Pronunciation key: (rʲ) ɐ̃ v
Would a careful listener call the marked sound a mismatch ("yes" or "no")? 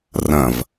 yes